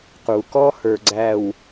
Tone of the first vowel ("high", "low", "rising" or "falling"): low